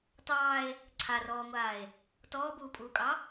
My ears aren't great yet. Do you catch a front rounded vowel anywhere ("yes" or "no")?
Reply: no